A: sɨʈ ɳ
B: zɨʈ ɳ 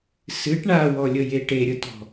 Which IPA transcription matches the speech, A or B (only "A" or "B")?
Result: A